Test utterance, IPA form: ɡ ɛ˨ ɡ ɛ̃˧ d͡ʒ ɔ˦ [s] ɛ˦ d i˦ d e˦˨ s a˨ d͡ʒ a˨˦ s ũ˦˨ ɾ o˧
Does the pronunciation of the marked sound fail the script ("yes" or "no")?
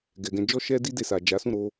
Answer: yes